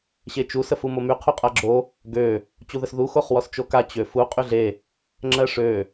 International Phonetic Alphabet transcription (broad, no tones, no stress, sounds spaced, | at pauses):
ɕ e t͡ʃ u s ə f u m o m y qʰ u qʼ a ɡ͡ǁ o | ɡ ø | t͡ɕ u ð ə s ð u x o χ w ɔ s t͡ʃ o k a t͡ɕ ø f u qʼ y ɮ e | ŋ͡ǁ ɜ ʂ ø